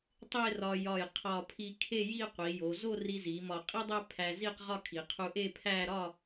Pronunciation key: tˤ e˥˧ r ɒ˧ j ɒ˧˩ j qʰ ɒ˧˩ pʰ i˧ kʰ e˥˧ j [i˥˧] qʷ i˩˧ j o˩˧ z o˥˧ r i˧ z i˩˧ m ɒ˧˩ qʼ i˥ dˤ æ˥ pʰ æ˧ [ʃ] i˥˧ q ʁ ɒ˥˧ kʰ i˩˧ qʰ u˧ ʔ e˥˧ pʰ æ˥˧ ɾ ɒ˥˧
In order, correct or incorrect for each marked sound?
correct, incorrect: z

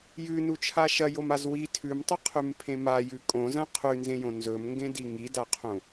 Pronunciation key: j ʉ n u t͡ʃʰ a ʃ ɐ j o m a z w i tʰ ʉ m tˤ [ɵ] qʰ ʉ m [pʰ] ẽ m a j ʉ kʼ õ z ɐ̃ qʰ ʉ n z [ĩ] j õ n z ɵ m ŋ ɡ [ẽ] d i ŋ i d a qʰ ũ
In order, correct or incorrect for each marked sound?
correct, correct, incorrect: ẽ, correct

